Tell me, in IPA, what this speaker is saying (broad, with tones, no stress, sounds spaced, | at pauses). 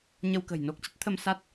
ɲ ə˧ w k ə̤˨˩ j n o˦˥ k̚ t͡ɕ ə˦˥ t̚ t̪ʰ ə˧ m s a˦˥ t̚